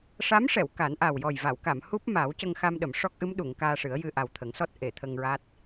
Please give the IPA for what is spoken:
ʂ a˧˥ m ʂ ɛ˨˩˨ w k a˨˩˦ n ʔ a˨˩ w j ɔ˨˩ j v a˨˩˨ w k a˨˩˨ m h u˦˥ p̚ m a˨˩˦ w c ə˧ ŋ x a˧ m ɗ ə˨˩˨ m ʂ ɔ˦˥ k̚ ʔ ɨ˧˥ m ɗ u˨˩˨ ŋ k aː˧ ʂ ɨ˨˩˦ ə̯ j ɨ˧ ʔ a˨˩ w t̪ʰ ə˨˩˦ ŋ s ɔ˦˥ t̚ ʔ e˨˩˨ t̪ʰ ə˧ ŋ ɹ a˦˥ t̚

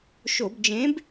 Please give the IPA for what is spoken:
ʃ o˧˩˧ b d͡ʒ ẽ˨˥ b

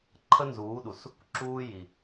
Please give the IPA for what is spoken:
ǃʰ ə˦ n z uː˨˦ ɗ u˨ s | ǁ uː˧ j i˨

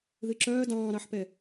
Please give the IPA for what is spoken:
ð ɨ ǁ œː d ɑ̃ː ɾ ɑ ħ p ɛ

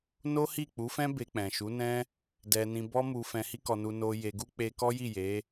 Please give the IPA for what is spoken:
n o˦ h i˦˨ k͡p u˨˦ f ɛ̃˦ b e˧ k͡p ɛ̃˨ ʃ u˨˦ n ɛ̃˦ | d ɛ˧ n ĩ˧ b ɔ˦ m u˧ f ɛ̃˧ h i˦ k ɔ˧ n u˧ n o˧ j e˧ ɡ u˦ k͡p e˧ k ɔ˦ j i˦˨ j e˨˦

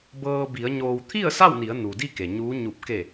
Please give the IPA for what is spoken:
b ɤː˧ b i˩˧ ə̯ ɲ oː˩ w t̪ʰ i˥˨ ə̯ s a˥˨ w n i˩˧ ə̯ n u˩ d i˥˨ k e˩ ɲ uː˧˥ ɲ u˧˩ p̚ k e˧˩

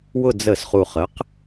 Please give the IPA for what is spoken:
w ʊ˦˨ d͡z ə˧˩˧ s χ u˨˩ χ ə˩˥ q

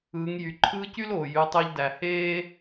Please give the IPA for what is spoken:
ɯː˩˧ ŋ j y˩ ǃʰ ɯː˧˥ c y˥ l oː˩ j y˩˧ tˤ e˧ ʎ d æ˩ h eː˥

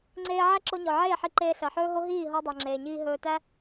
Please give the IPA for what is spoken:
ŋ͡ǀ eː˧ ʕ æ˦ ǁ o˧ ɲ ɔ˨ ʕ eː˦˨ ħ i˧ ǃ eː˧ ɬ ɜ˨ ħ ɵː˦ ɦ o˦ ɦ iː˦˨ ɦ ɔ˧ dˤ ɜ˨ ŋ͡ǁ eː˨ ɲ iː˧ ɦ ɵː˧ t æ˦

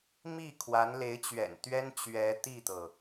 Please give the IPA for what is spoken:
m i˥˩ kʰ w a˧˥ n l e˧˥ ɪ̯ t͡ɕ ɥ ɛ̰˨˩ n t̪ ɥ ɛ˥ n t͡ɕ ɥ ɛ˧˥ t̪ i˥˩ t̪ ɤ˩

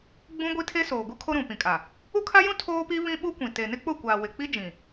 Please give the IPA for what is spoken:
ɡ͡b ũ˦ ɡʷ i˦ tʰ e˦ s oː˨ ɡ u˦ kʰ o˦ ɾ ũ˨ p ĩ˨ kʼ a˨ | u˦ kʰ a˦ j ũ˦ tʰ oː˦ p i˦ β ĩ˦ ɓ u˦ kʷ ĩ˨ t e˨ n ɪ˦ k͡p ʊ˦˨ kʷ aː˨ w ɪ˨ k͡p i˦ d͡ʒ ĩ˨

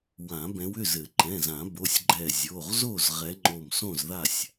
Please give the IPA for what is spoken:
w ã˨˩˦ b ɛ̃˨˦ w ʏ˩˧˩ z ɘ˨˩˦ ǃ ɛ̃˩˧˩ z ã˨˩˦ b o˩˧˩ sʲ ɡ͡ǃ ɛ˧˩ zʲ o˩˧˩ ʁ z o˥˨ z ʁ ɛ˨˦ ŋ͡ǃ o˧˩ m s õ˥˨ z ð a˥˨ sʲ

